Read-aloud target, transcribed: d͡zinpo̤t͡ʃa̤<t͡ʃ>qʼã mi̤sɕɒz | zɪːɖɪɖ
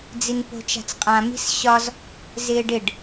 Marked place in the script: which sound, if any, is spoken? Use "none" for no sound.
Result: t͡s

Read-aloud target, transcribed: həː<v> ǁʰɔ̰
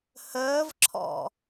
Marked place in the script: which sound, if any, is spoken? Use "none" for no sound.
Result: v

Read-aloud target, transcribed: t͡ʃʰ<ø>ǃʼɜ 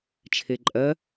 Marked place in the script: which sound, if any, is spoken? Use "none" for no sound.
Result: e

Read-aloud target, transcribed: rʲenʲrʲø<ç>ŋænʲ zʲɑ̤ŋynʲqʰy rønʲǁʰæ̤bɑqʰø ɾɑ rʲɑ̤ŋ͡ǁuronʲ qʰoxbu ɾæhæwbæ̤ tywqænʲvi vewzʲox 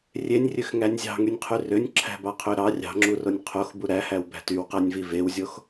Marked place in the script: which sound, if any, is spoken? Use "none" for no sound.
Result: x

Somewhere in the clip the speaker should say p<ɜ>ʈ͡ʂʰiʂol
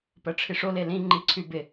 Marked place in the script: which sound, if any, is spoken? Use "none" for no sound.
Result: ɜ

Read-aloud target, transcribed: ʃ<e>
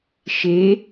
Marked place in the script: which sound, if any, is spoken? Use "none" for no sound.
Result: e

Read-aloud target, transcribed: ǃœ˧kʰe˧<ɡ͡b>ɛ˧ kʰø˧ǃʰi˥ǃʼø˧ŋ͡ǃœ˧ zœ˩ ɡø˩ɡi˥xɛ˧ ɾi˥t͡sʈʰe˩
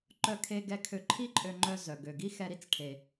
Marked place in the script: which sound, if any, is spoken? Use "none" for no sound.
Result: ɡ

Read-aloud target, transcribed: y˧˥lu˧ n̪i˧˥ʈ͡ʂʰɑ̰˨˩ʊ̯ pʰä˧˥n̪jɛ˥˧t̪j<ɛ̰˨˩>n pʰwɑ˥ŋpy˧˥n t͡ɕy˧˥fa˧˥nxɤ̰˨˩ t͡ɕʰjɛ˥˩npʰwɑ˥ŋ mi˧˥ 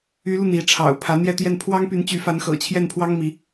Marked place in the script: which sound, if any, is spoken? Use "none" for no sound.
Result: ɛ˥˩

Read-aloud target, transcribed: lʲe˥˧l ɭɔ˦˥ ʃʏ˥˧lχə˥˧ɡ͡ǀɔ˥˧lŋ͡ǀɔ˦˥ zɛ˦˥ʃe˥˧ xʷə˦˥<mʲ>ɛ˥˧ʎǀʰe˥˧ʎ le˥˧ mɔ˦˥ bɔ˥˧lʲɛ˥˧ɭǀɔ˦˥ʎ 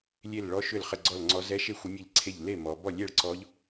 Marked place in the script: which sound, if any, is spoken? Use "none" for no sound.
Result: mʲ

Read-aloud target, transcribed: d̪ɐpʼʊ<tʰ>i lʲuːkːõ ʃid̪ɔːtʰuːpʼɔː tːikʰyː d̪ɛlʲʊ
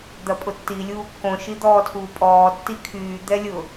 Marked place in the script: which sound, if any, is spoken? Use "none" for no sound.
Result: tː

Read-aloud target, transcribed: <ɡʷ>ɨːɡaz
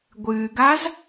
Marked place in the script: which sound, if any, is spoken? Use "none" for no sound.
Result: ɡʷ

